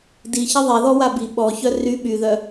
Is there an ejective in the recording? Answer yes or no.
no